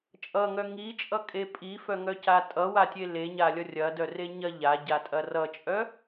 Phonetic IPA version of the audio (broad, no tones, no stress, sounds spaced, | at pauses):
t͡ʃʼ ʌ ŋ œ ŋ i t͡ʃʼ ʌ kʼ e pʼ i f œ ŋ œ c a tʼ ʌ w a tʲ e l e ɲ a lʲ ʌ rʲ ɐ d œ r e ɲ ɐ ʎ a ɟ a tʼ ɐ r ʌ t͡ʃʼ œ